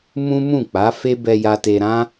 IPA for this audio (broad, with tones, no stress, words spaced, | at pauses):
mũ˦mũ˦˨ k͡pa˨˦ fe˦bɛ˧ja˧te˧ ɾã˦